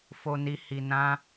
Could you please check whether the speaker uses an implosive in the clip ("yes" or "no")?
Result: no